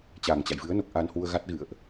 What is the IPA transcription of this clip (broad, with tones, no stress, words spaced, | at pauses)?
t͡ɕaː˨˩ŋt͡ɕa̰˧˨jvɨ˨˦ə̯no˨˩k̚ ʔa˧nhwu˧ə̯ɣa˦˥t̚ɣɨ̰˧˨ə̯ʔ